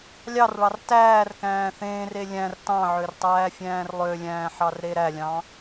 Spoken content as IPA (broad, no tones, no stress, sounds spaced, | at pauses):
lʲ ɑ r ɭ ɑ r t æː r k æ̃ː θ ẽː r e lʲ æ̃ r t ɑ̃ ʕ ø r tˤ æː fʲ æ̃ː r lˠ ø lʲ æ̃ː ħ ɑ r ɾ e ɾ æ lʲ ɑ̃